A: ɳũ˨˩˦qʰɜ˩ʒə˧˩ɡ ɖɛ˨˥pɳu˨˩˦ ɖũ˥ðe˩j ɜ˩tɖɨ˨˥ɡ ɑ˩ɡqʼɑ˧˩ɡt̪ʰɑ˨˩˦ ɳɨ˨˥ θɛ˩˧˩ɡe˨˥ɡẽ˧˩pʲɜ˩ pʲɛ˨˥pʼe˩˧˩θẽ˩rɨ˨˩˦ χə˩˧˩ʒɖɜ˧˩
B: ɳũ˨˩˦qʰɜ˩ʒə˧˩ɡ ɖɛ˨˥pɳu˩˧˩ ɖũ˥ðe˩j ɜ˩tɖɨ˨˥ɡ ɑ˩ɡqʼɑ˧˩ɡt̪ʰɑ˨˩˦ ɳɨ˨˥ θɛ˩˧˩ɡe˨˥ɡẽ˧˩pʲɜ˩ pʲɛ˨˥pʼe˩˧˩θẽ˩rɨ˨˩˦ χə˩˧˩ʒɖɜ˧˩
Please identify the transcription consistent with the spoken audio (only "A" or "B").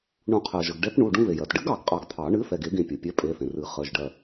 B